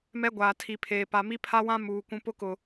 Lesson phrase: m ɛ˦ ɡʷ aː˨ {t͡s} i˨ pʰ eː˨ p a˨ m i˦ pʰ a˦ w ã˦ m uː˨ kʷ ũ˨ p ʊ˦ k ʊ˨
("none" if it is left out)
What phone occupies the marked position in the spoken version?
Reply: tʰ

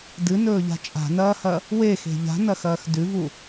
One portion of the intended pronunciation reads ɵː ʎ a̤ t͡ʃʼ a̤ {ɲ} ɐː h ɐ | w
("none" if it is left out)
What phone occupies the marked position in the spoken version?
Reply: n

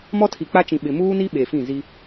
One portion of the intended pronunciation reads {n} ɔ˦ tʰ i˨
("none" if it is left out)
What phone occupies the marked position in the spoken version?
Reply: m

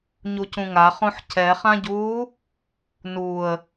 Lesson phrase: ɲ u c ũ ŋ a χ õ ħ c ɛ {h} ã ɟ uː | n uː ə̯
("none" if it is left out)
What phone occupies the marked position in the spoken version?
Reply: χ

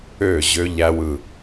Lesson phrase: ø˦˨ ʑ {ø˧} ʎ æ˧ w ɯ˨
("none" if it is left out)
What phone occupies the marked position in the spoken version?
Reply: ø˧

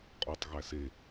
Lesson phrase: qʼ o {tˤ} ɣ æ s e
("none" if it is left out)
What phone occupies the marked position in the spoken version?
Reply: tˤ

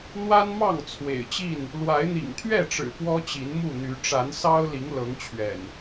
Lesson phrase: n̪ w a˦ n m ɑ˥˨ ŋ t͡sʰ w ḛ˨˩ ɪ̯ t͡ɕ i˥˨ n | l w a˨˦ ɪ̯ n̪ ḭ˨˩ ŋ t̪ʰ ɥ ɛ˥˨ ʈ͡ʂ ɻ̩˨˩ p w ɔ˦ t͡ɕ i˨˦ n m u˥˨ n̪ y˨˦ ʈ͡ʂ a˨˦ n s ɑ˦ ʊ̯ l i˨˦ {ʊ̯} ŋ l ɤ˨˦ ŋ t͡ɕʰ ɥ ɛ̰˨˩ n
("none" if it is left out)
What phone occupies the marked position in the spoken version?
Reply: none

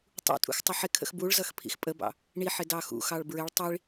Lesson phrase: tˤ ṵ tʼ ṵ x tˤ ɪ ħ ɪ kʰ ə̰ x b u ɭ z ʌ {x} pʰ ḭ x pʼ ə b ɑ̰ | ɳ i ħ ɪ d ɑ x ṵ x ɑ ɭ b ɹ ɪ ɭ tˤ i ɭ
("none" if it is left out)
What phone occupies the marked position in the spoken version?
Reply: x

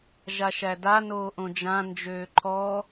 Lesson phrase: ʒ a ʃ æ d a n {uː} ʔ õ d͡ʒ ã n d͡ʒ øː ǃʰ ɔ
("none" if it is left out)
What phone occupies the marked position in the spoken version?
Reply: oː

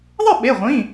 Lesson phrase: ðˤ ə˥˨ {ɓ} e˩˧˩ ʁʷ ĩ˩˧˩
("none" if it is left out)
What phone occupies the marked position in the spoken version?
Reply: ɓ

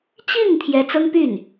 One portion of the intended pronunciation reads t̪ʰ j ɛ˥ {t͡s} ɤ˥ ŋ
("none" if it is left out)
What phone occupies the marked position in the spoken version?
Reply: t͡s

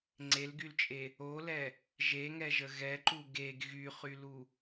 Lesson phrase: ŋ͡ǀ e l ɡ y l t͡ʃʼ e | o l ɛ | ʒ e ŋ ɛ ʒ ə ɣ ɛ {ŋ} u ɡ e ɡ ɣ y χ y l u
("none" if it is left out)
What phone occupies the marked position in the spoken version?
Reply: ǃ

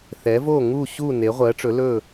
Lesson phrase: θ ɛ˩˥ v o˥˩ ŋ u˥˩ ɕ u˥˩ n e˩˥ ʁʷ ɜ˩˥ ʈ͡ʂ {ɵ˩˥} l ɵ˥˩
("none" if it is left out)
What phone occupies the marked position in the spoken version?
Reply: ɵ˩˥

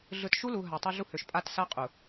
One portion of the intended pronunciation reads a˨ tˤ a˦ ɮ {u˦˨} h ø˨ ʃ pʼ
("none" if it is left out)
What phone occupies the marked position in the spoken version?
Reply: u˦˨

